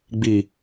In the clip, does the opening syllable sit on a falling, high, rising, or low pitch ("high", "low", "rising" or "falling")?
low